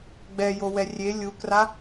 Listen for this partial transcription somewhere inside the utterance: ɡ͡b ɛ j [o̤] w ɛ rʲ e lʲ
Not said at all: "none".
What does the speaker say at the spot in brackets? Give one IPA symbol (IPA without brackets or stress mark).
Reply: o